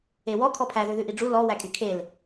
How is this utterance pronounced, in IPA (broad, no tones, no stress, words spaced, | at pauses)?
ewɔ kʰɔpʰæ ðøðʉʔiɖ͡ʐu lɔ wækʼykʰel